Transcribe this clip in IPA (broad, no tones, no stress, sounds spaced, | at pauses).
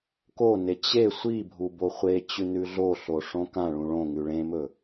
k o n e t͡ɕ e sʷ i bʱ u b o χʷ e t͡ɕ ʉ n ʉ ɮ o ɬ o ʂ õ k ã ɭ ũ ɭ õ ŋ ʉ ɭ ẽ m ɵ